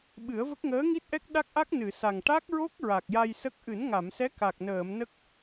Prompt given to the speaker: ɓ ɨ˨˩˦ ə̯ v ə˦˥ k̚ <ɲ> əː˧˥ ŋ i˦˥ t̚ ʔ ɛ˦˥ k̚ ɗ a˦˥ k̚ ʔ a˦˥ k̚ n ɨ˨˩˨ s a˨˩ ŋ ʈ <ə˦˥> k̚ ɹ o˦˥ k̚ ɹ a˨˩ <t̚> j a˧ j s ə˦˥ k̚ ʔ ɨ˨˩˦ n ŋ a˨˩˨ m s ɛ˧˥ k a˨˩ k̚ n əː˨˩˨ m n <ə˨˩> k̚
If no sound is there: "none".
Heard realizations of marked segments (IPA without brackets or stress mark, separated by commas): ŋ, a˦˥, k̚, ə˦˥